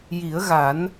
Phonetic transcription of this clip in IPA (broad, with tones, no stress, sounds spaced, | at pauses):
j i˨˩˦ ə̯ ɣ a˨˩˦ n